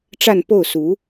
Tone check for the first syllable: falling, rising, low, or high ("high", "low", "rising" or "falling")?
falling